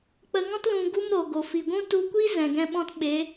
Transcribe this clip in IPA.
k͡pə˧ŋɔ̃˦t lũ˧ɡu˦mɾo˨ ɡo˨fi˨ɡʷũ˦ tu˧kʷi˦ zɛ̃˨ɡɛ̃˧ɓɔ̃˧t ɓe˨˦

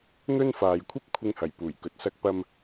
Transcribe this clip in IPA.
n̪ɵ˥nfaː˨j kʷʰɐ˥p̚kʷʰɪ˧ŋhɐ˨˩j puː˨˩jkɵ˨t̚ sɐ˧k̚pɐ˧m

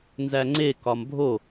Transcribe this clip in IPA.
nzæŋ͡ǀe kɒmbʱo

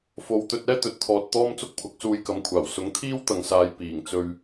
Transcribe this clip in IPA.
fo˨˧wt̪ɵ˧t̚ ɛː˥t̪ɵ˨˥t̚t̪ʰɔː˨t̚ t̪ɔː˥mt͡sʊ˥k̚pʰʊ˨˥k̚ suː˧jkɐ˨˥mkʷʰaː˨˩w sʊ˨˥ŋt̪ʰiː˥wt̪ɐ˨ŋsaː˨˧j piː˨˩ŋ t͡sɵ˧ɥ

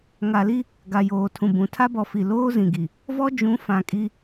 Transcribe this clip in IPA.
ŋa˨li˦ | ɡa˨joː˨tʰũ˨bũ˨˦ tʰa˦bɔ˨ fi˨ loː˦ zĩ˨ɡi˨ | vɔ˦ d͡ʒũ˨˦ fã˨kʼi˦

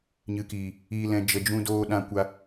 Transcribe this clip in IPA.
ɲɨ˨kiː˨ | iː˨lɛ̃˨ d͡ʒə˨d͡ʒũ˧doː˧ ɗã˧ kʷa˧

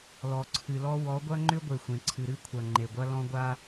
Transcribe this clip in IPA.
lɔ˨ǀʰɨ˨lɔ˦ wɔ˨˦ɡʷɐ˦ ŋ͡ǃʏ˦ɡʷe˨xʷẽ˨ǀʰɨ˨ ɾɨ˦kʷʰɐ˨ ŋ͡ǃe˨ɡʷɐ˦lɔ̃˦ɡʷa˦

